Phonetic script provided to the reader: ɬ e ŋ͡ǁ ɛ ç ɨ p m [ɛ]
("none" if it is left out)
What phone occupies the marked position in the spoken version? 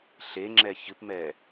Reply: ɛ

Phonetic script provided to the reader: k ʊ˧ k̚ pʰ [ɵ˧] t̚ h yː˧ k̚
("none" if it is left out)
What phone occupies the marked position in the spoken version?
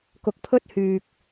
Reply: ɵ˥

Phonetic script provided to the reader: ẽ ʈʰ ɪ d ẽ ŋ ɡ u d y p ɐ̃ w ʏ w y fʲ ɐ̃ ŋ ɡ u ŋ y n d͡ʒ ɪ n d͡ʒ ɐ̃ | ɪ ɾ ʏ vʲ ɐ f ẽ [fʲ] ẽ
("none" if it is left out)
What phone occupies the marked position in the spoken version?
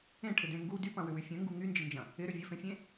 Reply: fʲ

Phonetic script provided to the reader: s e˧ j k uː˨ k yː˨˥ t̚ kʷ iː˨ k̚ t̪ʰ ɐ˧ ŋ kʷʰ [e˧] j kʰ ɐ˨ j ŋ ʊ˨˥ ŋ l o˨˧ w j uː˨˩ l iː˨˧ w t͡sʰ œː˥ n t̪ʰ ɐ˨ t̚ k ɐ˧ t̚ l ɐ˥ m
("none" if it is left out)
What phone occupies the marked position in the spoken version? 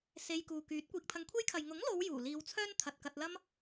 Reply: e˥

